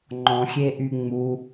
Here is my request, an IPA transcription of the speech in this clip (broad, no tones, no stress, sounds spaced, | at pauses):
ŋ͡ǃ ɔ̃ xʲ e ʔ y ŋ͡m u